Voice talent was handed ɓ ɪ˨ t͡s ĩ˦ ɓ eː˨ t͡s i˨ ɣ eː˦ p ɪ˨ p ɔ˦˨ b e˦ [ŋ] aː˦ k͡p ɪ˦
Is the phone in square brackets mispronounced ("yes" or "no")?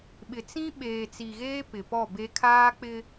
yes